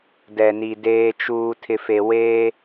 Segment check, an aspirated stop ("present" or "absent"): present